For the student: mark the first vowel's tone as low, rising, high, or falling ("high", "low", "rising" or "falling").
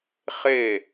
falling